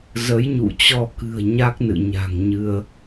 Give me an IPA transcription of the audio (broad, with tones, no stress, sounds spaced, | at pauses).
z ə˨˦ j ɲ ṵ˧˨ t͡ɕ ɔ˧ k ɨ̤˨˩ ə̯ ɲ a˦˥ k̚ n ɨ̰˧˨ ɲ a̤˨˩ ŋ ɲ ɨ˧ ə̯